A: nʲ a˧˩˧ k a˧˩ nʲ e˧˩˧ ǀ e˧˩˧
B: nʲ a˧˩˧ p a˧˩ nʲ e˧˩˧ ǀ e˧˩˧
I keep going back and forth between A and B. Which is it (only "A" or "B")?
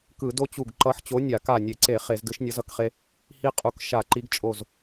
A